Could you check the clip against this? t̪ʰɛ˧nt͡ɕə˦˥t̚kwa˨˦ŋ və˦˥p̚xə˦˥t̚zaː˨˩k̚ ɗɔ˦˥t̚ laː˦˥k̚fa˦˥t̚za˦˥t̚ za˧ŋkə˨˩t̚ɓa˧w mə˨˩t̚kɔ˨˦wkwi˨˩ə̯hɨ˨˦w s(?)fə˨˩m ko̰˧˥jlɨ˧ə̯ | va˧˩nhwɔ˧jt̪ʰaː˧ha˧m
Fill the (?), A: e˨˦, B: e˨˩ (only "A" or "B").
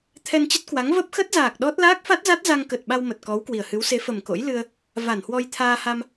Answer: A